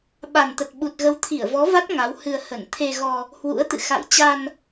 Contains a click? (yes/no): no